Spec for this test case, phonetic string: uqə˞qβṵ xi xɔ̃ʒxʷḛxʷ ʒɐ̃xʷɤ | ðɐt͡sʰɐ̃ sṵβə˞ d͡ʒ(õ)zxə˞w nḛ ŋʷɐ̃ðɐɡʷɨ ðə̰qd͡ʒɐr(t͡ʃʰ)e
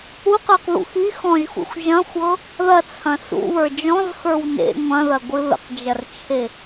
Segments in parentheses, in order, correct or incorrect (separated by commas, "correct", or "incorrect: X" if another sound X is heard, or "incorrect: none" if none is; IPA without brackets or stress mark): incorrect: ɔ̃, correct